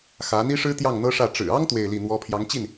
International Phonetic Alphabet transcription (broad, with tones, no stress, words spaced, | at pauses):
xä˧˥ n̪i˥ʂɻ̩˥ t̪jɑ˥˩ŋn̪ɤ˥ʂä˥˩ ʈ͡ʂɻ̩˨˩ɑ˥ŋ t̪we˥˧ɪ̯li˥˩n̪wɔ˥ pʰjɑ˧˥ŋt͡ɕi˥˩n